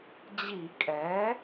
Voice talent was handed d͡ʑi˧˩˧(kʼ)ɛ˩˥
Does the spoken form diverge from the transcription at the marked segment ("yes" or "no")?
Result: no